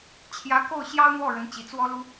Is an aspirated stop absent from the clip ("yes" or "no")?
no